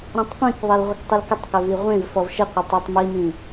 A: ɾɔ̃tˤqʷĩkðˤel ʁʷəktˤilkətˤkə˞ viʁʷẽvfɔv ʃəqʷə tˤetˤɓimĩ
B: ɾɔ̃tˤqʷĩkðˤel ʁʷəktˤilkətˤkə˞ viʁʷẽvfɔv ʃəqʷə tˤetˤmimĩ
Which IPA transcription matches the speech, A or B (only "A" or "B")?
B